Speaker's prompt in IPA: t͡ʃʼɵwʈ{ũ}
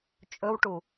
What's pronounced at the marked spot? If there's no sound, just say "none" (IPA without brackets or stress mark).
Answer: u